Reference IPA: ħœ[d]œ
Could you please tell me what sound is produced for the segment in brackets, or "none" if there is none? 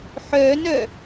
n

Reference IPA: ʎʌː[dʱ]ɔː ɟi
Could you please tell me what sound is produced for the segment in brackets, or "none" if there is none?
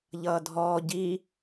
dʱ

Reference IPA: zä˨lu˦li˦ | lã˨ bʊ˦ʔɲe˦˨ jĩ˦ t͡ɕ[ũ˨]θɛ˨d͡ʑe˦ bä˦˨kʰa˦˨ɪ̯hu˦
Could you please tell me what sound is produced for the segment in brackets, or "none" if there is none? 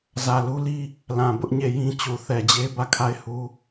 u˨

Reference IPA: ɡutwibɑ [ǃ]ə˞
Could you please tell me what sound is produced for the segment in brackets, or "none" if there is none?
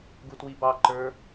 ǃ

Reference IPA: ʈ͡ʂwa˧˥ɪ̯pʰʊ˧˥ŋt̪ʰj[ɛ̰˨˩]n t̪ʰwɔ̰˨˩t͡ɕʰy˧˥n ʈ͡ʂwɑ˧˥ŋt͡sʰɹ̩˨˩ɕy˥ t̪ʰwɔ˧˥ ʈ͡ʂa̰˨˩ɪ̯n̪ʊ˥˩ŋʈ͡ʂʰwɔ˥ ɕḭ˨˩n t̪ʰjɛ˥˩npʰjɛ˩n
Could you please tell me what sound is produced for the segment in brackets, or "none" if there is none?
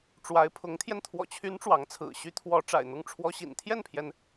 ɛ˧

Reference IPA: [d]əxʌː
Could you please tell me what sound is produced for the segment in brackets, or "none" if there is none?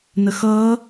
n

